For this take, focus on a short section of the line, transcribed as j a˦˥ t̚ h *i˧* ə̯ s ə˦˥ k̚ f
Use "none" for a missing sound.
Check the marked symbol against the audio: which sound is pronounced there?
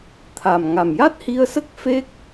i˧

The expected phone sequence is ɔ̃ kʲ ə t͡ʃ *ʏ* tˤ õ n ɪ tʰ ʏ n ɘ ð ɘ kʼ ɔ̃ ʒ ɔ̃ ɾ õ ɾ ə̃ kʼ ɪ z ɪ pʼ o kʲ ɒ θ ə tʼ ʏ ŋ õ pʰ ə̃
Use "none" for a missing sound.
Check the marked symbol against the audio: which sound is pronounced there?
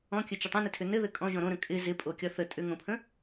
ʏ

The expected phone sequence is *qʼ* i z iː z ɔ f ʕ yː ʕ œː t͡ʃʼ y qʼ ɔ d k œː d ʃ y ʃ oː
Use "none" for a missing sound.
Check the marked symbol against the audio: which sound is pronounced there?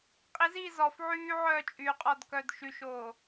qʼ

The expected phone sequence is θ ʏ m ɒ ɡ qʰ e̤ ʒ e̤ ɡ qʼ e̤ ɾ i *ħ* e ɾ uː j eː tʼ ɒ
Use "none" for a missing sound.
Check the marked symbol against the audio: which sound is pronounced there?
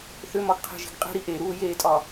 ʔ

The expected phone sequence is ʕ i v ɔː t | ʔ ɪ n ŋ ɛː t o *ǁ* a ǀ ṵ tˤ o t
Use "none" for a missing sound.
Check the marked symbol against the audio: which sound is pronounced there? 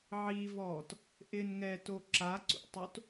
ǁ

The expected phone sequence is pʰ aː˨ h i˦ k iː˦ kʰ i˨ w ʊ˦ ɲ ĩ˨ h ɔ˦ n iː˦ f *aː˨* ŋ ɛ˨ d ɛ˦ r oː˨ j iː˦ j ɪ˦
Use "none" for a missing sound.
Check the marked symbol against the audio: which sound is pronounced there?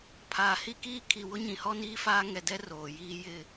aː˦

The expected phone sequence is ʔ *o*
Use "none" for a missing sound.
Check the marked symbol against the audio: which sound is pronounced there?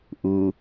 u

